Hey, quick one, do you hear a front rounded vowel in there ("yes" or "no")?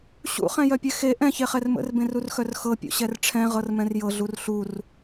yes